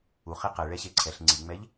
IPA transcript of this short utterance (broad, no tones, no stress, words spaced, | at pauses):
u χiqɛ ɭɛɕeǀʰɛɬ ŋ͡ǀiŋ͡mɛʎ